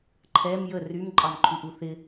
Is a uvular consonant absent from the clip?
yes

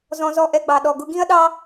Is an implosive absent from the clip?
no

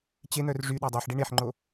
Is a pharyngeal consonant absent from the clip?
no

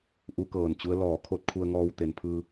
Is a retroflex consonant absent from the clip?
yes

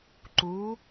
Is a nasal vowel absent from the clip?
yes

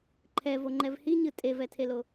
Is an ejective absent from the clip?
no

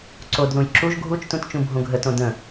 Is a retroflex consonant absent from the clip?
yes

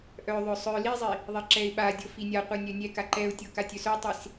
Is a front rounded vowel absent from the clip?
no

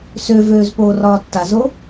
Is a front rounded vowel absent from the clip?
no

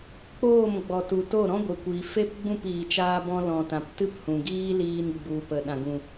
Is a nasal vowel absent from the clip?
no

